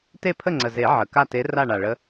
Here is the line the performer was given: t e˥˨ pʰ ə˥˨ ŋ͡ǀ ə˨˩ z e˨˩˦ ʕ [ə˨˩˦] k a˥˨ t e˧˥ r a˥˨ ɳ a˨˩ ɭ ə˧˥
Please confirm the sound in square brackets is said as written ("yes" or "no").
no